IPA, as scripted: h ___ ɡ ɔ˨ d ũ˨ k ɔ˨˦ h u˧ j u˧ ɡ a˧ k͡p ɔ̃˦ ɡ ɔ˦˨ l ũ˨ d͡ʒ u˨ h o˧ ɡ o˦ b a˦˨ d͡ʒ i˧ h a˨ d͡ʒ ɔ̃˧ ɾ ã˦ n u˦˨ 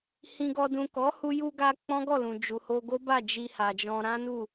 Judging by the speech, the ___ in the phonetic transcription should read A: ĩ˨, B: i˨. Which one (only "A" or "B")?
A